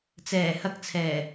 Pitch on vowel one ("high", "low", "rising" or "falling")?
low